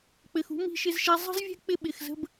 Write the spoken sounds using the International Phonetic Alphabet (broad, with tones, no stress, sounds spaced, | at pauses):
k͡p ɘ˧ x ṳ˦ m i̤˦ ʃ ɪ˧ z ʃ ɛ˧ zˤ ə̤˦ z vʲ ɛ̤˦ k͡p ɪ˧ ɓ ɪ˨ x z ə̤˧ b